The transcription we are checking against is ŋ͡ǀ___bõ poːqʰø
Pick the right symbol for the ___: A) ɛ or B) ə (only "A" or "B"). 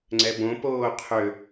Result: A